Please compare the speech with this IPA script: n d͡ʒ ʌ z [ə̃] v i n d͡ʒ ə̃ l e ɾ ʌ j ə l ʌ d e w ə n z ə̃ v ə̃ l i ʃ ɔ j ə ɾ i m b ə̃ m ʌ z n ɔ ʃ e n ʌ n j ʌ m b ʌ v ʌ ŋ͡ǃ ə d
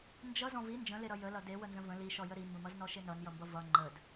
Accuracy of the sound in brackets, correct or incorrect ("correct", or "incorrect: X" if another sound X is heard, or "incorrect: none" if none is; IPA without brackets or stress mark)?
incorrect: ɔ̃